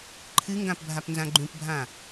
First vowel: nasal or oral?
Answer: oral